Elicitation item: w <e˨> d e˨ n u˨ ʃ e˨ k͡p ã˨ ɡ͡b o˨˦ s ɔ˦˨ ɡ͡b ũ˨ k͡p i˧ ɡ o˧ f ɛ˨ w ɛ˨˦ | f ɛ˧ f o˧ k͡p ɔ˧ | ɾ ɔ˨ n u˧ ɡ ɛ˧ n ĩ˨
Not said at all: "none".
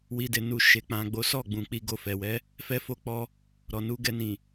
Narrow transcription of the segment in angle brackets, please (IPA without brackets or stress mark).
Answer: i˨